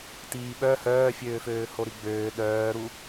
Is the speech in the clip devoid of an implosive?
no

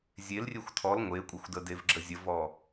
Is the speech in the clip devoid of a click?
no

